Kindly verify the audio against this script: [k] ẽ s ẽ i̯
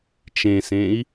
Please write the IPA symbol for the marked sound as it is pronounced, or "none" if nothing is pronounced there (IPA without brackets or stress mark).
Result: t͡ʃ